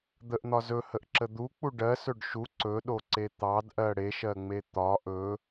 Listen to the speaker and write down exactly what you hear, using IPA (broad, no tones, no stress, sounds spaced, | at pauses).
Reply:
d̪ ə ʔ n̪ ɒ z ɵ h ə ʔ ǁ ə d̪ u k͡p u ɖ ɜ s ɵ ɖ ʃ u ǀ ɵ ɗ o ǀ e t̪ ɑ d ʔ ɜ ɽ e ʃ ɜ ŋ͡m e t̪ ɒ ʔ ɵ